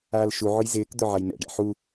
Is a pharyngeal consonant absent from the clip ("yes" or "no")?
no